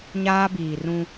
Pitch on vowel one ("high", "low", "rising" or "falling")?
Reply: high